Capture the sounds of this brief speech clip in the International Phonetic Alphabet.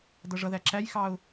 dʌʐʌðæ ǁæjxɑʊ̯

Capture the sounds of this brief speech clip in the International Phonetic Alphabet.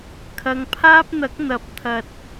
kʰɐ˨ŋpʰaː˥p̚n̪ɐ˨˥k̚ n̪ɐ˨˥p̚t̪ʰɐ˨t̚

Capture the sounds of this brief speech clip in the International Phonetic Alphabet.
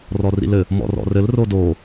rɔrḭlɘ | mɔ̰rɔ̰rɘl rodo

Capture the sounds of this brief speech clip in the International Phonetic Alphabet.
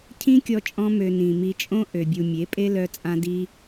cʰĩ˦kʲɔ˧t͡ʃʼɔ̃˧mø˨ nĩ˨mi˧t͡ʃʼõ˦ ʔø˨bʲu˨ mʲe˨˦pʼe˦ lœ˧t͡sʼã˧di˧

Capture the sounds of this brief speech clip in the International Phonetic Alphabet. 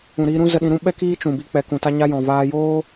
ũ˨ɾiː˧ɾũ˦ zə˧ɗĩ˧ɾũ˦ ɓɛ˦kiː˦ t͡ʃũ˨bi˧ k͡pɛ˨kũ˨ta˧ɲa˧ jɔ̃˨vaː˧joː˦

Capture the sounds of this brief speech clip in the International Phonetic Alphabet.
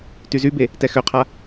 tyzybe | tɛxøqʰa

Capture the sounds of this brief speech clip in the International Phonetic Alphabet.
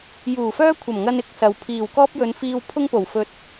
juː˨˩fœː˥kʷʰɐ˨˩mŋɐ˧n ɪ˧k̚sɐ˨w pʰiː˨˩wkɔː˥p̚jɵ˨˧n fiː˧wpʰʊ˥ŋpo˨˩wfɵ˧t̚

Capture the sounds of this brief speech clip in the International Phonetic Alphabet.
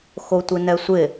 xotʷɪnɛsʷɪ

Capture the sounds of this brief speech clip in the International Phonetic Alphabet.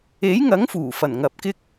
e˨˥jŋɐ˨˥ŋ fuː˨˩ fɐ˨˩n ŋɐ˨p̚kɪ˥k̚

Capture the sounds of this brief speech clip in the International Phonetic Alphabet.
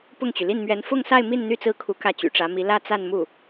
pʊ˥˩ŋt͡ɕy˩ li˥˩nmɥɛ˧˥n fʊ˥˧ŋsa˥˧ɪ̯ mi˥˧n n̪y˥˧t͡sɹ̩˥˩kʰu˧˥ kä˥˩t͡ɕy̰˨˩ʈ͡ʂä˧˥mi˧˥ lä˥˧ t͡sa˥˧nmu˥˩

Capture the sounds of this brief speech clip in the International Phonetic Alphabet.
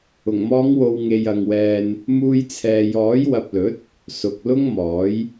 ʊ˨˩ŋmɔː˨˧ŋ wo˨wŋe˨j ɐ˨ŋwɛː˧n | muː˧jt͡sʰɛː˨jɔː˨˥j wɐ˨p̚lɵ˨˥t̚ | sʊ˨k̚lʊ˥ŋmɔː˨˥j

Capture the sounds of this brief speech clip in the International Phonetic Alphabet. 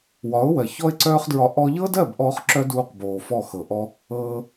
wɒ˨˦ʊ̯wɜ˨ çɔ˧ɪ̯ǀœː˧χdɹɒ˨ ʔɔ˧ʎɤ˦dɜ˦˨b ʔɔː˦χǁœ˦ duː˦qboː˨fɔ˦˨ xɤ˨ʔɔ˦ | ɤː˧

